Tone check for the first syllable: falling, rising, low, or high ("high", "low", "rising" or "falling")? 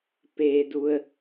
low